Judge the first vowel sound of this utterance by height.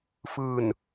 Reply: high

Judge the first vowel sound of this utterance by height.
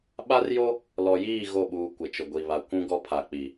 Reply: low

